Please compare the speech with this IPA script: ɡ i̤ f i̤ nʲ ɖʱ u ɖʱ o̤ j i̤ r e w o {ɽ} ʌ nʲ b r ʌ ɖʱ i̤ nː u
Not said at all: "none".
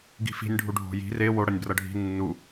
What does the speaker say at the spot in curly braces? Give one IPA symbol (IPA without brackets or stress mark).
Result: ɽ